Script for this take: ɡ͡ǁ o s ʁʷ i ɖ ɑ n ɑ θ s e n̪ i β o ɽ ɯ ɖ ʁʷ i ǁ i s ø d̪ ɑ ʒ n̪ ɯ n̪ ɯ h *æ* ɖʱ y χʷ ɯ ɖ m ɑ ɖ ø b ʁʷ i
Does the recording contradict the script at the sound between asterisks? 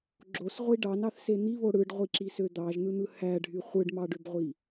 no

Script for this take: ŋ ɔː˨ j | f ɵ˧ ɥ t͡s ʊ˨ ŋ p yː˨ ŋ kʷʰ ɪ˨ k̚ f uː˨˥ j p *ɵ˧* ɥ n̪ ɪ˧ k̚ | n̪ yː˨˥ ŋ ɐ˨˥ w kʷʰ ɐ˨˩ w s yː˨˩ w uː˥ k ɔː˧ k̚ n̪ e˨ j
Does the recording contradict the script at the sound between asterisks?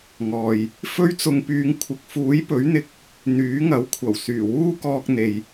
yes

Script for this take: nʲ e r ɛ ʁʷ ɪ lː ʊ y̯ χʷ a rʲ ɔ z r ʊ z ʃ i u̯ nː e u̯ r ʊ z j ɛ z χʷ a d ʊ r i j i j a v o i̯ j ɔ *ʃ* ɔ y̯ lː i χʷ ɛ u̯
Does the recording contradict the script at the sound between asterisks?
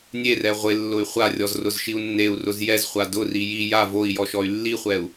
no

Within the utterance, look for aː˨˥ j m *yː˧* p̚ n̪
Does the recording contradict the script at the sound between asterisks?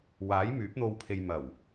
yes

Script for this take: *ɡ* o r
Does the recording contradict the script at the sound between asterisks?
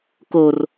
yes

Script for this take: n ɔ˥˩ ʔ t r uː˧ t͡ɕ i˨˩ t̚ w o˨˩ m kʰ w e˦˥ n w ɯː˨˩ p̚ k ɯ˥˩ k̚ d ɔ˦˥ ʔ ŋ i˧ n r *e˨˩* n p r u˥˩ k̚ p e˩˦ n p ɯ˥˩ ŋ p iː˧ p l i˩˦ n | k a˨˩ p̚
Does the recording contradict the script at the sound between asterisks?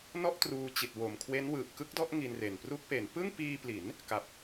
no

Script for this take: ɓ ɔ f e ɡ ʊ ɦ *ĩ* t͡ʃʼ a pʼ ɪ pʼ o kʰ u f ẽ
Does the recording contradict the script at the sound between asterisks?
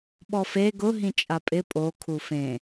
no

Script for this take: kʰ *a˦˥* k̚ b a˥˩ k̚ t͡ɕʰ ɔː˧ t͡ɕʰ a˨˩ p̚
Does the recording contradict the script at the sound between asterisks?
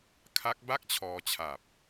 no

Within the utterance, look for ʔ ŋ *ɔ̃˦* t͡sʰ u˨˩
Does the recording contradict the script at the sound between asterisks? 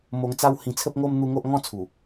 yes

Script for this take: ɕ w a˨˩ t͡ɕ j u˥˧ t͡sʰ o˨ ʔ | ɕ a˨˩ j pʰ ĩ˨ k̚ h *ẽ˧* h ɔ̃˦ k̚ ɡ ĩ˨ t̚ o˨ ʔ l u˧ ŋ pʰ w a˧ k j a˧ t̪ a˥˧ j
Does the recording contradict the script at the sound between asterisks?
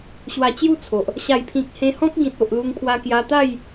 no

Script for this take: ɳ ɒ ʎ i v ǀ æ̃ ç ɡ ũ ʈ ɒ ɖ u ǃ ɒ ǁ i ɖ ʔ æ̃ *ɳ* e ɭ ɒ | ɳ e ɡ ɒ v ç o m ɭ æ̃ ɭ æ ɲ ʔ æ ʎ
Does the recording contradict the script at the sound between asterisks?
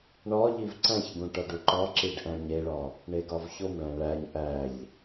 yes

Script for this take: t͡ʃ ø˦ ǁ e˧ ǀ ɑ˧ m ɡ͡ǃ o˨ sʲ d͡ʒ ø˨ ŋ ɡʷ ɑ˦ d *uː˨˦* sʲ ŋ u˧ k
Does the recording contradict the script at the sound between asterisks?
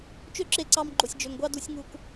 yes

